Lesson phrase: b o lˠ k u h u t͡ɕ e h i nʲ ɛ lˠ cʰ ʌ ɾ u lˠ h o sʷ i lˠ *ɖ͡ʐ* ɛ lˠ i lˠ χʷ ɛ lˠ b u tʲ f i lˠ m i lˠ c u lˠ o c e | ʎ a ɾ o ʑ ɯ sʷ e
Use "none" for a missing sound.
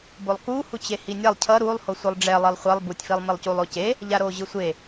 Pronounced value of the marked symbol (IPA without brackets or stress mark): ɖ͡ʐ